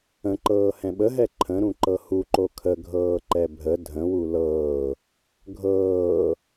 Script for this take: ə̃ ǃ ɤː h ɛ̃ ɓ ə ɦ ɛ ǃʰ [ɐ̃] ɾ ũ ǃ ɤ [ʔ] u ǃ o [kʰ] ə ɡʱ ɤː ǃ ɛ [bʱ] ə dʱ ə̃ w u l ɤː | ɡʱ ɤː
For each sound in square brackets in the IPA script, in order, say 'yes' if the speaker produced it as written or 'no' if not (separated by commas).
no, no, yes, yes